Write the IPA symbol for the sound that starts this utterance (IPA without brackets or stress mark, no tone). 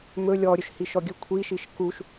m